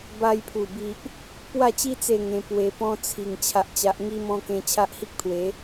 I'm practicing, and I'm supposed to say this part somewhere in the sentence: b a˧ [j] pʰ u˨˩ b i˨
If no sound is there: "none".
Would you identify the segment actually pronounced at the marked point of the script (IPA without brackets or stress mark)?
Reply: j